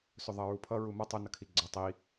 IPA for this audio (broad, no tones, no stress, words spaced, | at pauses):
sɵðˤʌɹupʰʌ ɹumʌ tˤɵ nʌkʰiɡ͡ǀʌ tˤi